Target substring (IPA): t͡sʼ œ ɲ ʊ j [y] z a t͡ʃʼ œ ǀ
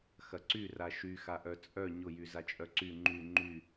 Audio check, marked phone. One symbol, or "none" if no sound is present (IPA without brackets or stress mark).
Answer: y